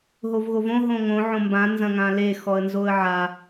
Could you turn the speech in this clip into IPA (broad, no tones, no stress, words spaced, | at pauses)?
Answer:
ɦovɣovõ ɦõŋõ ʕõmbã nzɐ̃ŋãle xɔə̯nzoə̯ʕa